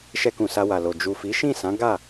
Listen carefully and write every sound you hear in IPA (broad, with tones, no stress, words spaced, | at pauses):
ʃɛ˧kũ˨ sa˧wa˨lo˨ d͡ʒu˨fi˨˦ ʃĩ˦˨sã˨˦ ɡa˦˨